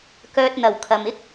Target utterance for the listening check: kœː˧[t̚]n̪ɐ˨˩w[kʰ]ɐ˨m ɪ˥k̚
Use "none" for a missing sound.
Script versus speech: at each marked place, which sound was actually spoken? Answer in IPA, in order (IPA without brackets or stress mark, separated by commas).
t̚, kʰ